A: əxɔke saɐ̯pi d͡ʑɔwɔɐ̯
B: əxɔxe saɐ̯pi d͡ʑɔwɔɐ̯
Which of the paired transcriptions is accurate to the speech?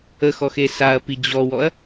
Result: B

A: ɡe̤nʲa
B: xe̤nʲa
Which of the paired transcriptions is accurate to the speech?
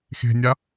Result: B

